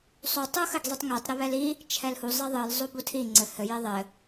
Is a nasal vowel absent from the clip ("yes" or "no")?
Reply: yes